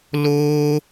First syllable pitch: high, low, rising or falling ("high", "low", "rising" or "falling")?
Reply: high